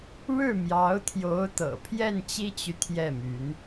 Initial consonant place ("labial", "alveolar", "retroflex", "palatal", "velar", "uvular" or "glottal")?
retroflex